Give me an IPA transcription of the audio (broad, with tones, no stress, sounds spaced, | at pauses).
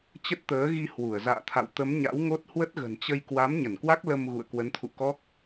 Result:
t͡ɕ ə˦˥ t̚ t̪ əː˨˦ ɣ i˧ h w u˧˩ ə̯ z a̰ː˧˨ t̪ʰ a̰˧˨ w t̪ ə˨˦ m ɲ a̰˧˥ w ŋ o˦˥ t̚ h w ə˦˥ t̚ ɣ ə̤˨˩ n t͡ɕ ə˧ j k w a˨˦ m ɲ ə˧˩ n k w a˦˥ k̚ l ə˧ m ɣ ṵ˧˨ ə̯ k w ə˨˦ n t̪ʰ ṵ˧˨ k ɔ˦˥ k̚